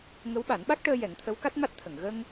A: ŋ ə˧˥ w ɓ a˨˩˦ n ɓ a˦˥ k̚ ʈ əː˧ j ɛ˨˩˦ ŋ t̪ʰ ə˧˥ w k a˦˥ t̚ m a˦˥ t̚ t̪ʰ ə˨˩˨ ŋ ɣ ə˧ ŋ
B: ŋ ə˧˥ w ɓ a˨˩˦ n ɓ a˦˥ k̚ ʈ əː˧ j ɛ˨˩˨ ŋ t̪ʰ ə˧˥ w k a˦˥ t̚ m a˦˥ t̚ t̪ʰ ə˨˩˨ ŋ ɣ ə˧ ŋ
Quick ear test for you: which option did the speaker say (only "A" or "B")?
A